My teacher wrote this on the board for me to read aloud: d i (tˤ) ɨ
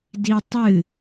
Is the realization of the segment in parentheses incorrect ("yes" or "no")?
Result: no